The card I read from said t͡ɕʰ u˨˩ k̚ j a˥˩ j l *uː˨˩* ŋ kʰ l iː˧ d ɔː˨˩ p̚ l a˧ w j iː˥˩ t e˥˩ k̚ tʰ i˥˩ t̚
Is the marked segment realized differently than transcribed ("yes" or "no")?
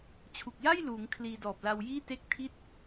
yes